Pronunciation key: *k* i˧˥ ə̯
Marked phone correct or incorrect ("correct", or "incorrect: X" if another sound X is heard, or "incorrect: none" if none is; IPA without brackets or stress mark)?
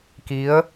correct